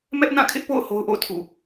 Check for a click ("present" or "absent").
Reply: absent